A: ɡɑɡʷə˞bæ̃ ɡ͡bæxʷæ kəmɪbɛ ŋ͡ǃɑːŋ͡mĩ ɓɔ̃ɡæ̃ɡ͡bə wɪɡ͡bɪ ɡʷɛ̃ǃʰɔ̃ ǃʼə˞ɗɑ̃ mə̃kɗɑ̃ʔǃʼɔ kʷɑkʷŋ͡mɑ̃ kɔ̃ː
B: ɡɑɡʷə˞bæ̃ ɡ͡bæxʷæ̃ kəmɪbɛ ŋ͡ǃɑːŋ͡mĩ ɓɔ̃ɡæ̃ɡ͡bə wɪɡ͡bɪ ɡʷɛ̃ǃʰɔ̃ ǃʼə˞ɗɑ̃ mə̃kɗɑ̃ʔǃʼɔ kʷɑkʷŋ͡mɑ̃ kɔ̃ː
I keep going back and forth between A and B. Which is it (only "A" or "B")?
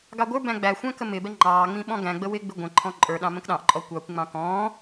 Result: B